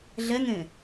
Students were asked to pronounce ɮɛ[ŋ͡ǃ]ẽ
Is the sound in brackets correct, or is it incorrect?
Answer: incorrect